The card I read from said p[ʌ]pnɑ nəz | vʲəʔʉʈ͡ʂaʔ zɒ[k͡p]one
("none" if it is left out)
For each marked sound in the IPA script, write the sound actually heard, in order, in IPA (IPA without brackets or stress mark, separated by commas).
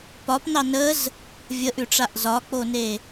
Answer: ɒ, k͡p